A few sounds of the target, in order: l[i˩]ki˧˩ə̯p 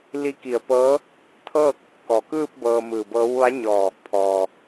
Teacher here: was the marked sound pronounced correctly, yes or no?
no